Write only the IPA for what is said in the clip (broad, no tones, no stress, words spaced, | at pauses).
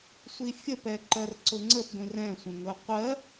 sʷifʲəpɛ ǃɜrǀʊŋ͡ǀəp ɡʷĩrɛ̃sʷə̃ŋʊ qʷɜ